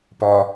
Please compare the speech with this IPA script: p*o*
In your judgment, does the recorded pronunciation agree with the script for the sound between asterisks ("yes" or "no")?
no